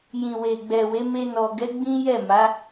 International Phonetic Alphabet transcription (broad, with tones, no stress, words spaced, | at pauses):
jĩ˨we˨ɡ͡bɛ˨we˨˦ me˧ nɔ˨ɡɛ˨˦ ɡ͡bĩ˦jɛ˦˨ma˨˦